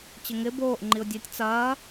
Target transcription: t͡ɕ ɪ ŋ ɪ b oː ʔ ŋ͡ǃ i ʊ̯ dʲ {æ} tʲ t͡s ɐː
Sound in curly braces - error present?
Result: yes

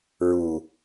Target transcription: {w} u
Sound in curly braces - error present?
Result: yes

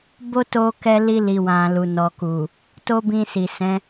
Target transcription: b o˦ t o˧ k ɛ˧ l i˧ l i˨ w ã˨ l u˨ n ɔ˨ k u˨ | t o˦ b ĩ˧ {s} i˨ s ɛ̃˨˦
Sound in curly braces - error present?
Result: no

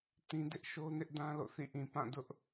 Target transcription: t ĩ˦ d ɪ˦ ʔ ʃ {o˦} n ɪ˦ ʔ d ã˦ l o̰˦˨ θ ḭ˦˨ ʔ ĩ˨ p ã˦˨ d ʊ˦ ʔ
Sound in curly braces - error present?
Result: no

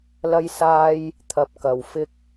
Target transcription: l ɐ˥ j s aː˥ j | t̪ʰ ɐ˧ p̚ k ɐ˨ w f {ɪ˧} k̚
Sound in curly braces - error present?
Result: yes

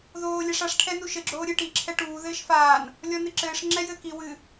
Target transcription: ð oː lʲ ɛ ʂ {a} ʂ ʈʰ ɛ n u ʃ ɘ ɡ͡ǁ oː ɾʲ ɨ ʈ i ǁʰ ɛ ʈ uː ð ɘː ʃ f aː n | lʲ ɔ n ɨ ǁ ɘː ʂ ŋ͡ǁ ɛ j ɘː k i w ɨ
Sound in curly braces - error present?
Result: no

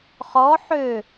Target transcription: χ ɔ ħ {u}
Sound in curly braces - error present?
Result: yes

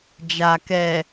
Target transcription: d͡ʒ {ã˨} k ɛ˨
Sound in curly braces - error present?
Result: yes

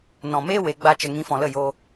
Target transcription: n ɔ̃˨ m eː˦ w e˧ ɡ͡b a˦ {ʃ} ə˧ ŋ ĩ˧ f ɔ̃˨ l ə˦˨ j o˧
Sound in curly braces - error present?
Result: yes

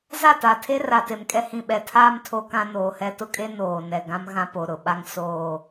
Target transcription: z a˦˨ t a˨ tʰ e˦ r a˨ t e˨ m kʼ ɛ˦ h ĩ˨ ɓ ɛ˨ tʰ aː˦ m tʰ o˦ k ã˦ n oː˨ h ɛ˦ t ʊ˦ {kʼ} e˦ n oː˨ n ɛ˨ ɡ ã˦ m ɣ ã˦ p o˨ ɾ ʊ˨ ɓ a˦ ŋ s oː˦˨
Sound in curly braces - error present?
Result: no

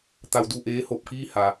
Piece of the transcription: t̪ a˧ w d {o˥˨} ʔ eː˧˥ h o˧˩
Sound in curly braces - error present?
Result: yes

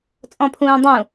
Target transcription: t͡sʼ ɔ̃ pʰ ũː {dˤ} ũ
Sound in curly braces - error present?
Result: no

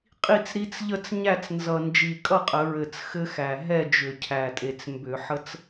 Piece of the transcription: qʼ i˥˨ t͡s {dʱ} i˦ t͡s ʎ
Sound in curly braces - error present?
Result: yes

